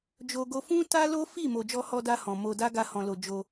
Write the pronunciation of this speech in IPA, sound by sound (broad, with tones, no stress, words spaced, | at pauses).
d͡ʒo˧ ɡo˧fũ˦ta˦lo˦ fi˦˨ mo˨d͡ʒɔ˧hɔ˧da˧ hɔ̃˨mo˧da˦ ɡa˧hɔ̃˨lo˨ d͡ʒo˧